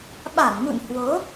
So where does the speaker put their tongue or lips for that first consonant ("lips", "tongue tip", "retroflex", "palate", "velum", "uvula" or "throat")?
lips